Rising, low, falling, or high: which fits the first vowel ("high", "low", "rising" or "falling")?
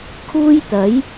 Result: high